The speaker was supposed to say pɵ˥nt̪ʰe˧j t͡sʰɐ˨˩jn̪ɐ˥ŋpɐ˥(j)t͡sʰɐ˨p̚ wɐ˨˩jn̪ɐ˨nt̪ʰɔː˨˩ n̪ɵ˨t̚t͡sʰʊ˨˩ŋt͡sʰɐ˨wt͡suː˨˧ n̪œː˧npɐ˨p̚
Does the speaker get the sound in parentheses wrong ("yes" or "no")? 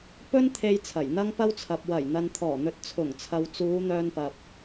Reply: yes